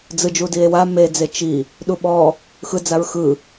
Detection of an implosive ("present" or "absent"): present